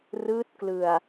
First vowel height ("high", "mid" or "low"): high